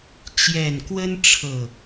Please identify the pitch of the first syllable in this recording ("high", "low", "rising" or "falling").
low